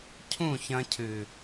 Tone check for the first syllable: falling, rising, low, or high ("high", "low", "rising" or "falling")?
falling